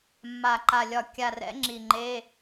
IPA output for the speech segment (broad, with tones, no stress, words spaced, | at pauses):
mːa˨˩ǃa˨˩lʲɒ˨˩ kʲa˨˩rɛ̰˨˦ ŋ͡ǁi˨˩ŋ͡ǃe˧˥˧